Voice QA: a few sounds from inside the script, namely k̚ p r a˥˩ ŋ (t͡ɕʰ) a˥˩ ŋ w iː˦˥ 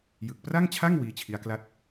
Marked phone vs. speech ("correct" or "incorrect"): correct